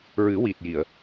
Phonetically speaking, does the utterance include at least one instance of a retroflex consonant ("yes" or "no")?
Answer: no